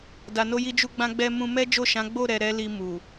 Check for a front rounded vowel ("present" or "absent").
absent